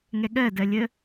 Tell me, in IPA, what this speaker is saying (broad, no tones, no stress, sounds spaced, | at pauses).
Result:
ŋ ɛ ɠ ɜ d ɜ lʲ ə